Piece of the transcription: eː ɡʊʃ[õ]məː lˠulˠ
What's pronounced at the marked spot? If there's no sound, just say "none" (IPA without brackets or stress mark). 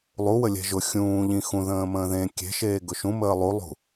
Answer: ũ